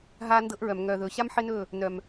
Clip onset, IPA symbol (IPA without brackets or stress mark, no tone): ɦ